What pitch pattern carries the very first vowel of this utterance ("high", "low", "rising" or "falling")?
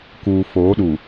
low